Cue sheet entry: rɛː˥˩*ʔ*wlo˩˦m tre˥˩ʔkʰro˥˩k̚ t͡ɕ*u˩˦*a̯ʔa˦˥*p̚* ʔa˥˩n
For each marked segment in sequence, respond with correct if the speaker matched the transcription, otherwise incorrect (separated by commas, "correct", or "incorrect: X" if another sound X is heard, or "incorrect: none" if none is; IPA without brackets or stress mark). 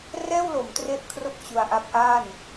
incorrect: none, incorrect: u˧, correct